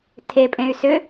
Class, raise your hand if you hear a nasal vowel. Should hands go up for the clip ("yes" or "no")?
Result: yes